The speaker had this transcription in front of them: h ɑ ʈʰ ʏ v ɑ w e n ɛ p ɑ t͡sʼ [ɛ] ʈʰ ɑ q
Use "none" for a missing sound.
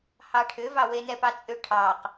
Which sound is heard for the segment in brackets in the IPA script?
ʏ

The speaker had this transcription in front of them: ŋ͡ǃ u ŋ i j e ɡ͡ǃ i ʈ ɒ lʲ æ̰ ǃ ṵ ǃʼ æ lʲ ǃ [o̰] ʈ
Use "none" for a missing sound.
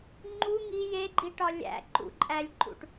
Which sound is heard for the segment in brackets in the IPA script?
ṵ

